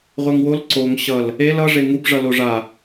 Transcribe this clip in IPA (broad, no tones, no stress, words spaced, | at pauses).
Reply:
ʁʷeŋwol ǀoŋ ɕʌl | el ʌ ʐeŋub ʐʌloʐa